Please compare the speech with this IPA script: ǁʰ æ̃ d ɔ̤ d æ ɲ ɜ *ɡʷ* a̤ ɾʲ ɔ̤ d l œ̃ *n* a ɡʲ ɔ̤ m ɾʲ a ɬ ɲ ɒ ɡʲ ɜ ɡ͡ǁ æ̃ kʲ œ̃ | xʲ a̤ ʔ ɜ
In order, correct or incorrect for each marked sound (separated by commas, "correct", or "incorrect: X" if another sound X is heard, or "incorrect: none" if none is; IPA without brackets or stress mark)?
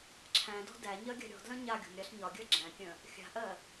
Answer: incorrect: ɡʲ, incorrect: ɲ